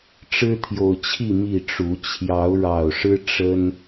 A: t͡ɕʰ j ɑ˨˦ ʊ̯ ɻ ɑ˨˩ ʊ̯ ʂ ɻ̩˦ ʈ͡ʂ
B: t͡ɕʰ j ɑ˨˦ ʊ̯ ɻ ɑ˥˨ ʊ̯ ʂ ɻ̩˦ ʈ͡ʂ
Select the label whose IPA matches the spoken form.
A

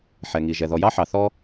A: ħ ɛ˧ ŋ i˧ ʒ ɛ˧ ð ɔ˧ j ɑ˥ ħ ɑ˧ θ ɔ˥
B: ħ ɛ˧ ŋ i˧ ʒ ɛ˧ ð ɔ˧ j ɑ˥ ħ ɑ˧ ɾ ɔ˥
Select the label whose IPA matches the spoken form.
A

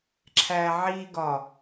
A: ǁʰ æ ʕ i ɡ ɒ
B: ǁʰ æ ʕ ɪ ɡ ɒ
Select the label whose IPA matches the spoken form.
A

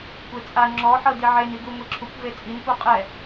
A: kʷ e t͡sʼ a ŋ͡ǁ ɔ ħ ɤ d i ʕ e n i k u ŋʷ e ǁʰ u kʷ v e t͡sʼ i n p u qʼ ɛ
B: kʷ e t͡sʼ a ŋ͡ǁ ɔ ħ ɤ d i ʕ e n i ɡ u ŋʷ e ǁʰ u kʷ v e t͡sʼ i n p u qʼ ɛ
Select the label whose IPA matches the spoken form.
B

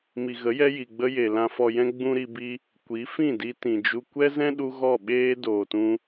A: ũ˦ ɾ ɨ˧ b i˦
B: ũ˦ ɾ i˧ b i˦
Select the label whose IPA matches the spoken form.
B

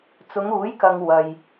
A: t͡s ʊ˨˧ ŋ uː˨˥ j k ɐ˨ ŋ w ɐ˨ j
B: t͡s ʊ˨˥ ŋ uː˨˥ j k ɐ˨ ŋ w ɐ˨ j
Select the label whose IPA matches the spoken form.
A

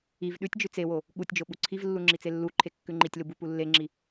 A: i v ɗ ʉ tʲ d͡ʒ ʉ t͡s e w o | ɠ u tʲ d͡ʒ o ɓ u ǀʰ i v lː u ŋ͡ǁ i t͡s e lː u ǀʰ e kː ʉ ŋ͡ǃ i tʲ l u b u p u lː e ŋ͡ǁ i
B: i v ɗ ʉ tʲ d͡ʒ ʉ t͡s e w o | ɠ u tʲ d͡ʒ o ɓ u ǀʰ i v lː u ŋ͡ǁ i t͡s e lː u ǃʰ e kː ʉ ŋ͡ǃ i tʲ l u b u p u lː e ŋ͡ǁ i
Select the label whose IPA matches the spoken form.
B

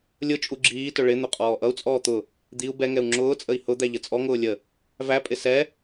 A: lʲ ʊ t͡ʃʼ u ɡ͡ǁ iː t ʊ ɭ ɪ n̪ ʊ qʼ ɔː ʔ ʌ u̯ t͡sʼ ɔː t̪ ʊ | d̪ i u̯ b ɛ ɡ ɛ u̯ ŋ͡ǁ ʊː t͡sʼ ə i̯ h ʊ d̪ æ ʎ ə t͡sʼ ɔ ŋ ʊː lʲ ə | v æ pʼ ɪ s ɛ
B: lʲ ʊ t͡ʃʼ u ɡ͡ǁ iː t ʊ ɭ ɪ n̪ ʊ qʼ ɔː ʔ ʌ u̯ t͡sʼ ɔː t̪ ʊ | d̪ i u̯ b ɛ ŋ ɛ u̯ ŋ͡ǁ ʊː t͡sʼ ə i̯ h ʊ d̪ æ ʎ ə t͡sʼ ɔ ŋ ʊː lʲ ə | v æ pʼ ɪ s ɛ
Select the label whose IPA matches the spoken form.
B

